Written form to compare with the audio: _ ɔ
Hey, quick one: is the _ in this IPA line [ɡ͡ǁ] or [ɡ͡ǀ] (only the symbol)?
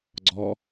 ɡ͡ǀ